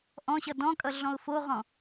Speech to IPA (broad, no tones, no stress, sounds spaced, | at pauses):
ʔ ɔ̃ ɕ ʌ d ɔ̃ kʼ ʌ ɮ ɔ̃ ʊ̯ f o ʁ ɔ̃